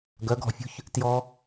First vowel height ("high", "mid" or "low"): mid